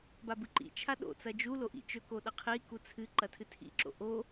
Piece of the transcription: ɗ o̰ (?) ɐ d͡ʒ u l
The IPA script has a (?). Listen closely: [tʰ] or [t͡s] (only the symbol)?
t͡s